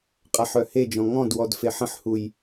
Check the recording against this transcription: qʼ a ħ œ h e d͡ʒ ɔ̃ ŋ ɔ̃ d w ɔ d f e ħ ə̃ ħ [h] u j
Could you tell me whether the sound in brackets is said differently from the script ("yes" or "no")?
no